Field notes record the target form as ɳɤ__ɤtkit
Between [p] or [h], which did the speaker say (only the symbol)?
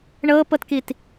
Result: p